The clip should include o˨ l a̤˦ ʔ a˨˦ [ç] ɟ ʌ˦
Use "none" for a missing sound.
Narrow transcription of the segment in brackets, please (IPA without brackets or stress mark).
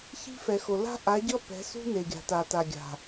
none